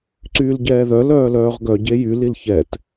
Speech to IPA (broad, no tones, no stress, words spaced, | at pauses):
ǀyːlɟɛːðœ lœːlœːʁɡœ ɟejy lilçɛt